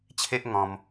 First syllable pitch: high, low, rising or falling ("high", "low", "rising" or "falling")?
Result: high